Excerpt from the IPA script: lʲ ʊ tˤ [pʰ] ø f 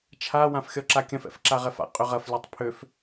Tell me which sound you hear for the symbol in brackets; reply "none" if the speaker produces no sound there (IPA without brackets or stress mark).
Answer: pʰ